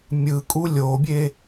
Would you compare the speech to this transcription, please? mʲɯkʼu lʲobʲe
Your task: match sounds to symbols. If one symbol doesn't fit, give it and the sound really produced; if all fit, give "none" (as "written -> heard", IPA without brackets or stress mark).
none